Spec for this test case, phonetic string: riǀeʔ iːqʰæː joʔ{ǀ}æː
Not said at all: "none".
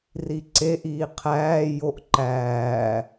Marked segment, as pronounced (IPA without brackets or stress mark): ǃ